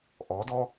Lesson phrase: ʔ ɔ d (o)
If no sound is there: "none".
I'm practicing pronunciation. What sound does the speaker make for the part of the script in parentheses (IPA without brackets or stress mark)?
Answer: ɔ